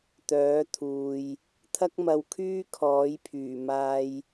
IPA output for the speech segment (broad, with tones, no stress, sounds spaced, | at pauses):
t̪ œː˨˥ t̪ʰ uː˨ j | t̪ʰ ɐ˥ k̚ m ɐ˧ w kʰ yː˥ kʰ ɔː˨˥ j pʰ yː˨˩ m aː˧ j